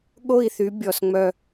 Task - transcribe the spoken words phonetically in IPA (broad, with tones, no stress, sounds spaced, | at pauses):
ɠ o˦˨ i̯ θ y˨˥ bʲ ɔ˩ s ŋ͡m œ˦˨